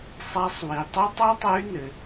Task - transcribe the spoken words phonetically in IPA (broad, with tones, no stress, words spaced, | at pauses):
sˤa˧˥sˤwi˩tˤi˥ tˤo˥tˤɨ˧˥y̯nɘ˩